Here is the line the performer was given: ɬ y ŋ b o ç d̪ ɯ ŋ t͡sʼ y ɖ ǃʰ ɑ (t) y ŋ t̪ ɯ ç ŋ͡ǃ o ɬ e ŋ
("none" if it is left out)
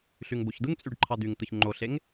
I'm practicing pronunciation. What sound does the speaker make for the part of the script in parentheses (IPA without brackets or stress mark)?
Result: d̪